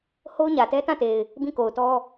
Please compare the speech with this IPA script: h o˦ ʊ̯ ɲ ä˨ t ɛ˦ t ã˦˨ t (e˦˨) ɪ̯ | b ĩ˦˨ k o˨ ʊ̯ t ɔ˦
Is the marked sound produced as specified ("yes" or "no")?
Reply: no